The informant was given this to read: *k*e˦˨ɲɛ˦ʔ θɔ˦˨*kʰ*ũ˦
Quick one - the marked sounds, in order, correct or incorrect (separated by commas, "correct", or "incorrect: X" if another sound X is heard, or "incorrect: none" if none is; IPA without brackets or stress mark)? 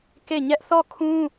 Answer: correct, correct